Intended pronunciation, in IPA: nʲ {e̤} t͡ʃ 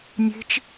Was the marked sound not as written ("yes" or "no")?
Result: no